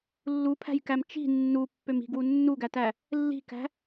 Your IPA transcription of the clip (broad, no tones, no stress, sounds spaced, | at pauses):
lː u pʰ æ̤ j k æ m t͡ʃ i̤ nː u pː ø m i̤ ɡ w u nː u ɡ æ t æ | lː i̤ k æ̤